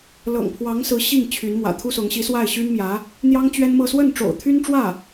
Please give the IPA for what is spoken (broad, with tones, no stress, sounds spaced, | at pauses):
l ɤ̰˨˩ ŋ pʰ w ɑ˧˥ ŋ s ɹ̩˧˥ ɕ i˥˩ ŋ t͡ɕʰ y˧˥ n m w ä̰˨˩ t̪ʰ u˥ s ʊ˧˥ ŋ ɕ i˧˥ s w a˥˩ ɪ̯ ɕ y˥ n m j ä˧˥ | n̪ j ɑ˥ ŋ t͡ɕ ɥ ɛ˥ n m ɤ˥˧ s w ə˥˩ n ʈ͡ʂ o̰˨˩ ʊ̯ t̪ʰ y˥ n ʈ͡ʂ w ä˥˩